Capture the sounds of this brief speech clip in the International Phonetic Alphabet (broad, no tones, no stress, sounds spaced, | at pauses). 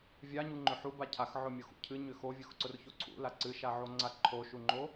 vʲ a ɲ u ŋ͡ǃ ʏ ħ u b a cʰ a x ʕ ʊ mʲ ʊ x ṵ cʰ ɨ ɲ ʏ x o vʲ ʊ x ǀ ʊ r ç o ǀʰ ṵ l a ǀ ɨ ʃ a ʕ o ŋ͡ǀ a ǃʰ o ʃ u ŋ͡ǃ o